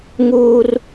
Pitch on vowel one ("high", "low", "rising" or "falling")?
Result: high